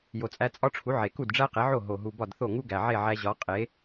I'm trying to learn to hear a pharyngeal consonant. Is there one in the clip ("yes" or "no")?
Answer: yes